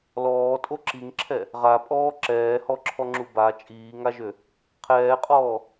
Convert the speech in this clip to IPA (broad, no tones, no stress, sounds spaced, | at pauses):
l ɔː tʼ o ǁ i ŋ ǁʰ ɛ | ʁ a pʼ ɔː ǁ ɛː h ɔ ǁʰ ɔ ŋ͡ǁ u b a t͡ʃʼ iː ŋ a ʒ ø | qʰ ɛː qʼ ɔː